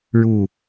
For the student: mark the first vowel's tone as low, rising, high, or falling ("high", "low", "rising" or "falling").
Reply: low